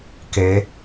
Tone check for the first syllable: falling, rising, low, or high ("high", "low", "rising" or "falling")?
rising